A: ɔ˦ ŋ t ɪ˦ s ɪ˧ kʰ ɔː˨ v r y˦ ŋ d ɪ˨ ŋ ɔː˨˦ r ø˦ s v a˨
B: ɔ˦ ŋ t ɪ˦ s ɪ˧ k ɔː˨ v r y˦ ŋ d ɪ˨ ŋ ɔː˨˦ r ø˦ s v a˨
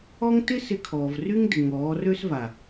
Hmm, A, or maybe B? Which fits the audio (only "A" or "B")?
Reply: A